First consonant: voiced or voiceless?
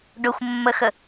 voiced